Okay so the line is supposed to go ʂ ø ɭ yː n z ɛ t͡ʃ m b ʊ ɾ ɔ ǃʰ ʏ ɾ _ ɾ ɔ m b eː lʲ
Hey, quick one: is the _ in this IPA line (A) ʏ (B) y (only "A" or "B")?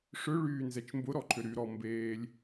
B